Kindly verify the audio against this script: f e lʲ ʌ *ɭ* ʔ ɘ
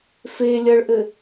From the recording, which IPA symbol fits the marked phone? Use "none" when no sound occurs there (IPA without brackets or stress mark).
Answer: ɭ